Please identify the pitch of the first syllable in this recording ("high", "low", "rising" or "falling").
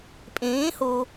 rising